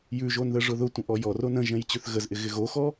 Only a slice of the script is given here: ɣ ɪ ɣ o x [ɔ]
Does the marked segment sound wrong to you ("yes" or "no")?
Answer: no